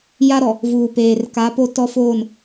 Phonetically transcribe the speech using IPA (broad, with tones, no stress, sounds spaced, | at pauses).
j a˦ ɾ ɔ˨ | v uː˨ p eː˨ r k a˨˦ p o˦ t ɔ˦ f oː˦˨ n